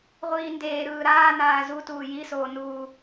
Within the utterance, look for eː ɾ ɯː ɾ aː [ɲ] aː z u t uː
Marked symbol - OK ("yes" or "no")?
no